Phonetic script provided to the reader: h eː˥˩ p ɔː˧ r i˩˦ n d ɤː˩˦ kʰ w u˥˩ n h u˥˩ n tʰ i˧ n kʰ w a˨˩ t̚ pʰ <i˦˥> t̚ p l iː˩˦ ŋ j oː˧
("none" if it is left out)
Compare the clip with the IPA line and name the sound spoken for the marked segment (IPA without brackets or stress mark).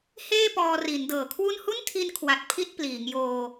i˥˩